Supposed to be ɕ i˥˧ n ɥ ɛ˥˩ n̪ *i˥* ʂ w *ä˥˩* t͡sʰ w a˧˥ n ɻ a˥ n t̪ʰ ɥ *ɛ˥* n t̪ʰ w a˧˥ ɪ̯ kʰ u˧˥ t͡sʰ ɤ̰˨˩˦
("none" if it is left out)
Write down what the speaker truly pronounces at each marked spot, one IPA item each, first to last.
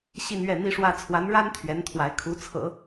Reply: i˥, ä˥, ɛ˧˥

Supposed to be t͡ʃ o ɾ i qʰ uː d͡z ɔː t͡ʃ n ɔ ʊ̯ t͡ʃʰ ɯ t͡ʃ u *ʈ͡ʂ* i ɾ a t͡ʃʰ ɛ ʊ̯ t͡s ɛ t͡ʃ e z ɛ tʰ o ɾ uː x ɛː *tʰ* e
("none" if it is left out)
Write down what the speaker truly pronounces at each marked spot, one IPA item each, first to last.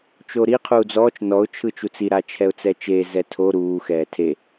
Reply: t͡s, tʰ

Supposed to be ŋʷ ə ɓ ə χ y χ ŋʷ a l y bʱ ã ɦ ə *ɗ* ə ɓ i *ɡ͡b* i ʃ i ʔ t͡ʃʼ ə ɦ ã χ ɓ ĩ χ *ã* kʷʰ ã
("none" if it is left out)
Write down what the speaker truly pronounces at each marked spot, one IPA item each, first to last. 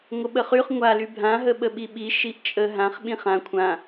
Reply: ɓ, ɓ, ã

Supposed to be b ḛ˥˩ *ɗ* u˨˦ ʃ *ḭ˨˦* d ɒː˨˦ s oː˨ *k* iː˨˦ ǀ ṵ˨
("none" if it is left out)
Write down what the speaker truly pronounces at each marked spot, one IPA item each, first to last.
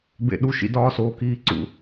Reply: ɗ, ḭ˨˦, k

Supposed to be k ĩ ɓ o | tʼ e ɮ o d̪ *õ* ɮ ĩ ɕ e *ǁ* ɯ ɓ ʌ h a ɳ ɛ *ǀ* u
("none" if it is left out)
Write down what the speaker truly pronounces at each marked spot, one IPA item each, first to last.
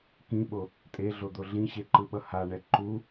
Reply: o, ǃ, ǃ

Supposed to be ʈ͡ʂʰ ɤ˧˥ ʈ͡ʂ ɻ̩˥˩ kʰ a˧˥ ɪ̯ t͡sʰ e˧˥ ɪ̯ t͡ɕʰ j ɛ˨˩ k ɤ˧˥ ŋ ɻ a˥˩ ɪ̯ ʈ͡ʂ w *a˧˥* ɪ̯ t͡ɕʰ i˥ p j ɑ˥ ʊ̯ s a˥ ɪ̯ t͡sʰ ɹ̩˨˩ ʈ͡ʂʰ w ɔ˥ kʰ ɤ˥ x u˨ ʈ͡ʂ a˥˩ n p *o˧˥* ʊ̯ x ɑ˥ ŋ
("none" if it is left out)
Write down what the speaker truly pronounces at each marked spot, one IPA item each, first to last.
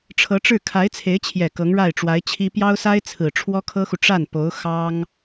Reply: a˧˥, o˧˥

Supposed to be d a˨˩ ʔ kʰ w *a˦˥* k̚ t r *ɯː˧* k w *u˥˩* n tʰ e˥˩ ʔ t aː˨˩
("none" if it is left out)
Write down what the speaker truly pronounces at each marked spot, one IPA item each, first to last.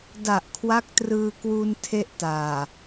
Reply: a˦˥, ɯː˧, u˧

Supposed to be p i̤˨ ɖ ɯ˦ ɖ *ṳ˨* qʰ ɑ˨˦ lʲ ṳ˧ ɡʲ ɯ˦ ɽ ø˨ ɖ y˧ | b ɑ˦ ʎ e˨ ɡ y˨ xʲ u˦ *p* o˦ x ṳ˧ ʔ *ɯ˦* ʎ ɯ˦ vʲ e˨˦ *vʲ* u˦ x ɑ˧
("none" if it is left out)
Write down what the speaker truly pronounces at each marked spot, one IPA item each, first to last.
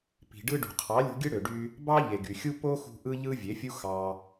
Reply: ṳ˨, p, ɯ˦, fʲ

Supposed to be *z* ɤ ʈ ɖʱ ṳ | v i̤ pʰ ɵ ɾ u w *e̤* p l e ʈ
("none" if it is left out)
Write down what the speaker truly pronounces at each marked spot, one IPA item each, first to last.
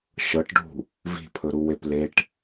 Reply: ʃ, e

